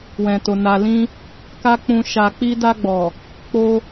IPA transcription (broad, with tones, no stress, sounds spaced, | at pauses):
w ɛ̃˨ t o˨ n a˧ l ĩ˦ | k a˦ k͡p ũ˧ ʃ a˨ k͡p i˧ d a˧ ɡ͡b ɔ˨ | k͡p o˦